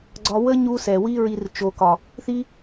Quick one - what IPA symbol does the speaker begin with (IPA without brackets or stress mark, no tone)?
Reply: ɡ͡ǀ